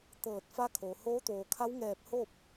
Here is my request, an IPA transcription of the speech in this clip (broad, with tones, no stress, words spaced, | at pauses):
t̪ɤː˧˩t̚fa˧˥kʰo˩ hoː˧˥t̪oː˩kʰa˧˥wŋɛː˧˩p̚ ho˥˨p̚